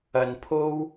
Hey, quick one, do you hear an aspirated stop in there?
yes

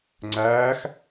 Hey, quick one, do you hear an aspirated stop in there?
no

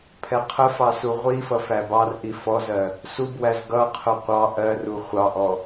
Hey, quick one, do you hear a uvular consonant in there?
yes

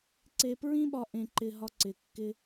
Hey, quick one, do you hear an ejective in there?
no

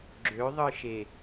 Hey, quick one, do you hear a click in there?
yes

